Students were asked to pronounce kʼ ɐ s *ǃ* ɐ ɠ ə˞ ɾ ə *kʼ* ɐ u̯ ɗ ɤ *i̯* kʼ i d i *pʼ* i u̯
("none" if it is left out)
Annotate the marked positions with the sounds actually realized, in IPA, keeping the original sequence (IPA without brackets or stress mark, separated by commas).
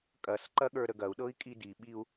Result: ǃ, ɡ, i̯, ɓ